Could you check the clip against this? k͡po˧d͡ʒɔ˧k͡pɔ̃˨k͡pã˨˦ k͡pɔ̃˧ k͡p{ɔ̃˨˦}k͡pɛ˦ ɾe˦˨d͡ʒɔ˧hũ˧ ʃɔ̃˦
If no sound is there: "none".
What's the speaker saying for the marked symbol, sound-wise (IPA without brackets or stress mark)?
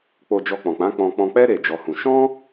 ɔ̃˧